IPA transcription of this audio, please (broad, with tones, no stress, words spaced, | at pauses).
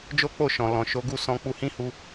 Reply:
d͡ʒo˦k͡po˦˨ʃɔ̃˨lɔ̃˨ ʃo˨˦ɡu˦˨sɔ̃˧ k͡pu˧hĩ˦hu˧